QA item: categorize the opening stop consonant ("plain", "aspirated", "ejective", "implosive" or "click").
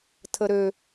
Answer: aspirated